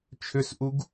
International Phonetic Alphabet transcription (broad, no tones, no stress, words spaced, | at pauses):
t͡ʃʰʏsʔuɡ